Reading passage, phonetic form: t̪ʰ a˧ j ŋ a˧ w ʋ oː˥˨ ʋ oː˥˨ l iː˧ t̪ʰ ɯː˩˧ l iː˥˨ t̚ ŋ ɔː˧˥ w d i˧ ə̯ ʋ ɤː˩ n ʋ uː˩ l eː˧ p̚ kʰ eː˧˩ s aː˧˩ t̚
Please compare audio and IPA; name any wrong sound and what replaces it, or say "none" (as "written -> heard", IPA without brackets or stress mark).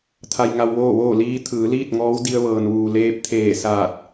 kʰ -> t̪ʰ